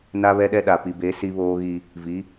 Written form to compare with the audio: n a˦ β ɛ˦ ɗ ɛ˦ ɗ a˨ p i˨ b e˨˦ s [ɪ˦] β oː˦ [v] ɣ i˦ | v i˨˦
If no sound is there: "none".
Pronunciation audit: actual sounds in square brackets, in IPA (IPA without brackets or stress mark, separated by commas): i˦, none